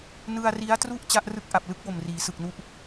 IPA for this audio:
n ɯ˧ a̯ r i˦˥ a̯ t r u˥˩ ʔ t͡ɕ a˦˥ ʔ r ɯ˥˩ k̚ ʔ a˨˩ p̚ l ɯ˦˥ k̚ w o˨˩ m r iː˩˦ s ɯ˨˩ k̚ n u˥˩ ʔ

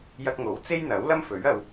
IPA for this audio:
j ɐ˧ k̚ ŋ o˨˥ w t͡s e˥ j n̪ ɐ˨˥ w l ɐ˥ m f ɵ˨˥ ɥ ɐ˧ w

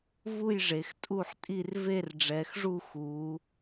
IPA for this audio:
v u˥˨ j ʐ e˩˧ x tʼ u˥˨ ħ tʼ i˥˨ r v e˥˨ r ɖ͡ʐ ɛ˩˧ x ʐ u˥˨ x u˩˧

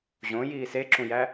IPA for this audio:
ʑ õ j iː s e ǁ ũ j æ

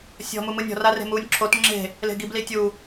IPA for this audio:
sʲ ɔ̤ m u m ɯ nʲ ɔ̤ r a r e̤ m uː nʲ ǁʰ o t ŋ͡ǁ e̤ | l e̤ ɡ i b l i tʲ u

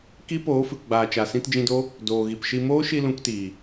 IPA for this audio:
k i˦ p oː˨˦ f ɨ˨ k ɡ͡b aː˨ t͡ʃ a˨ s ĩ˧ t d͡ʒ ĩ˧ d o˦ | d oː˨ ɣ i˨ p ʃ i˧ m oː˦ ʃ i˧ l ũ˧ k t iː˨

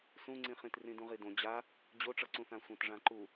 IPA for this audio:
s ũ ŋ͡ǀ ĩ χ ĩ t r ĩ d ũ ʁ i d õ d͡ʑ a | d͡ʑ o ʈ͡ʂ ʌ ǀ ũ θ ã sʷ ã t ʐ ã ǃ u

